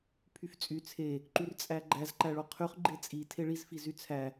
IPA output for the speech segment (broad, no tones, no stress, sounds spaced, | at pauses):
pʰ y f t͡sʼ y t͡sʰ e | ǃ y r t͡sʼ æ ɡ͡ǃ æ z ǃ æ ɭ o qʰ y χ ɡ͡ǃ e t͡sʼ i tʰ e ɭ i z f i z y t͡sʰ æ